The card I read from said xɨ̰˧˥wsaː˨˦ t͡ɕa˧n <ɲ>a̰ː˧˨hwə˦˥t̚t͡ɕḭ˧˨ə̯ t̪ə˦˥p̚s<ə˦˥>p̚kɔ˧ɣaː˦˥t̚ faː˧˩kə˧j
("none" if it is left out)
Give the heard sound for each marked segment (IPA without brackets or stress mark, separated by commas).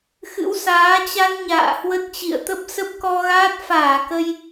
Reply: ɲ, ə˦˥